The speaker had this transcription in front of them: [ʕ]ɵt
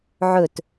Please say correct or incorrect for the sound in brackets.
correct